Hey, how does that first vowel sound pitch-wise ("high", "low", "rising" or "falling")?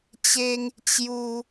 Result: high